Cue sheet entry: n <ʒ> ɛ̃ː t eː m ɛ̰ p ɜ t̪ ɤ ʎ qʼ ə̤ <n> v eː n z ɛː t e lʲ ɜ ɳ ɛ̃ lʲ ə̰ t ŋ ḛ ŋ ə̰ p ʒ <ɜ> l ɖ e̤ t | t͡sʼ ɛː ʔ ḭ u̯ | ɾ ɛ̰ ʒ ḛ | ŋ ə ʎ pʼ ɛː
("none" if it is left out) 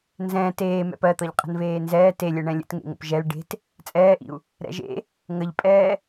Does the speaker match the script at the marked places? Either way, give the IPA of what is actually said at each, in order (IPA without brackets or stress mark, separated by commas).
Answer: z, n, ɛ